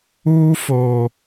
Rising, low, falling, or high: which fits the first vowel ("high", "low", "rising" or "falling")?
high